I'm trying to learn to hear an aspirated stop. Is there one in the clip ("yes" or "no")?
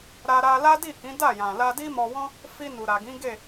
no